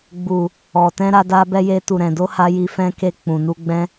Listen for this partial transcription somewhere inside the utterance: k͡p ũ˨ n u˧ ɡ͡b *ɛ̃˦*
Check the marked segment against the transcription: correct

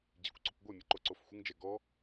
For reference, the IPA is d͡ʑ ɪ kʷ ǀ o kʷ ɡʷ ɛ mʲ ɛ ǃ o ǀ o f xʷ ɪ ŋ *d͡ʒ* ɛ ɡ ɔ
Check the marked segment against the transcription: correct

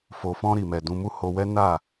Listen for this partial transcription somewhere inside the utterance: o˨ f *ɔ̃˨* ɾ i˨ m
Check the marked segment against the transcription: incorrect: ɔ̃˧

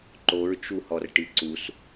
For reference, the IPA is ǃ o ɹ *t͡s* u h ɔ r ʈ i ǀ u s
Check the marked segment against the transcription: incorrect: t͡ʃ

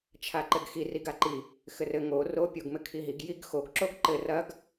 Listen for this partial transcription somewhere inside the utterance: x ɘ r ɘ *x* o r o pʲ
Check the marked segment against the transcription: incorrect: ŋ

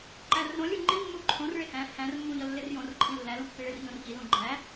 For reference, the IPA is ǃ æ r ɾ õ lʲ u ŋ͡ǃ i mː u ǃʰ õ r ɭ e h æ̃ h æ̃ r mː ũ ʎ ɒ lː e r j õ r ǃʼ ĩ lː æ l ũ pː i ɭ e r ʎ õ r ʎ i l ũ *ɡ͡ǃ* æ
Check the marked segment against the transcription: correct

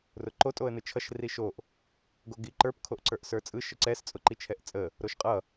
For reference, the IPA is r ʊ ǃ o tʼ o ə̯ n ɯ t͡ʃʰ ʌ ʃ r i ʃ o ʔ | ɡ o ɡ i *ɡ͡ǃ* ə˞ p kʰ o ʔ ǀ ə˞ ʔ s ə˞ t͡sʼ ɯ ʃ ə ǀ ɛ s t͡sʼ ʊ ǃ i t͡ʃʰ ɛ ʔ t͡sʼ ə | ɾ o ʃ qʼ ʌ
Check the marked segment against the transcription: incorrect: ǃ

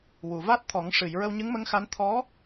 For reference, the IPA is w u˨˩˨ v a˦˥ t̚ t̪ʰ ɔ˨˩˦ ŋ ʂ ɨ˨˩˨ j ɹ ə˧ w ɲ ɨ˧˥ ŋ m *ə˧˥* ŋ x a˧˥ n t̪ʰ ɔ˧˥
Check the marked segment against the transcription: correct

